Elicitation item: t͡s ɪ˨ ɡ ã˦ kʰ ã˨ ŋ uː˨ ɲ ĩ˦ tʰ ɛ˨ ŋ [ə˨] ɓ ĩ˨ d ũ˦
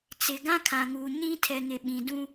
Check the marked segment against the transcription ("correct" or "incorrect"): incorrect